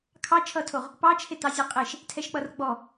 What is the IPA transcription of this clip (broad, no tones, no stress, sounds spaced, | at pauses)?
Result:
kʰ ɑ t͡ʃʰ ʌ tʰ o ʁ | p ɑ t͡ʃʰ e t ɑ zʲ ɛ qʼ e ʃ | tʰ ɛ ʃ k͡p ʌ r ɡ͡b ɔ